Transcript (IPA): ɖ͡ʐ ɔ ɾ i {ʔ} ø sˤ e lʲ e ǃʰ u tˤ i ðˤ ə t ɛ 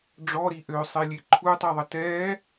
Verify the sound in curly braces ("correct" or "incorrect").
correct